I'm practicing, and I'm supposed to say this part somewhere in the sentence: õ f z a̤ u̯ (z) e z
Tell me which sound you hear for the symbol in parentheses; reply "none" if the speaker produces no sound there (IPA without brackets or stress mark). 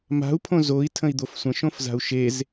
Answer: ʃ